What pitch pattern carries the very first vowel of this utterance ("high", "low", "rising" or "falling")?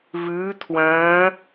rising